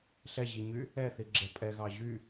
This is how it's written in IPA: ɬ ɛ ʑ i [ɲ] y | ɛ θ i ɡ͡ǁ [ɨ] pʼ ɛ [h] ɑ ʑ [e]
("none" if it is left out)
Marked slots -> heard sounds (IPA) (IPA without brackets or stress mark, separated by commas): ɲ, ɛ, ɣ, y